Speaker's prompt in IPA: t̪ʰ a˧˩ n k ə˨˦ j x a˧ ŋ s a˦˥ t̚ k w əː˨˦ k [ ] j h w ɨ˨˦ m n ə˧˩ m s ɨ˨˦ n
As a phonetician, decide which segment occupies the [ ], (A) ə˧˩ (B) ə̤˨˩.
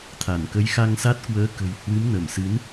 B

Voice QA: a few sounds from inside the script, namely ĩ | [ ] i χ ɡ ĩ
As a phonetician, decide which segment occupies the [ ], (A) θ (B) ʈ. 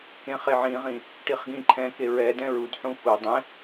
B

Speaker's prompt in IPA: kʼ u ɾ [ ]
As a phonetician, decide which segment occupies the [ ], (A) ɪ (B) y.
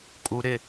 A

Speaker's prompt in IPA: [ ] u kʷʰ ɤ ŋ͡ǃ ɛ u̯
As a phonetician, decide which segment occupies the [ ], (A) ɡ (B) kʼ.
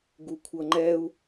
A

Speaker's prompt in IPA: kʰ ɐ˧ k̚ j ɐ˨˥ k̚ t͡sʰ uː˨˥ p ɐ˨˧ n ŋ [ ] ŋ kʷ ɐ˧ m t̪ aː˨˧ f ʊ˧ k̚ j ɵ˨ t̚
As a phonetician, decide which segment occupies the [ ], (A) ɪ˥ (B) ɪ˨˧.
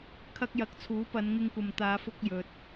A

